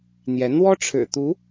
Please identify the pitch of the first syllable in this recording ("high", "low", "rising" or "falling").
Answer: rising